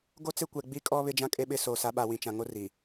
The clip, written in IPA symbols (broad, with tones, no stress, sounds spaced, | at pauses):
ɡ o˦ t͡s e˦ kʷ ɛ˨ ɡ͡b i˦ kʼ ɔ˦ β ɪ˦ d͡ʒ ã˦ kʼ e˦ ɓ ɪ˦ s o˨ s a˨˦ ɓ a˨ w ĩ˨ t͡ʃ ã˨ ŋ o˦ r i˨